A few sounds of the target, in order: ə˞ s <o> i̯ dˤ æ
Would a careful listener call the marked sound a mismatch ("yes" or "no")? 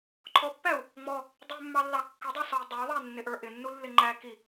yes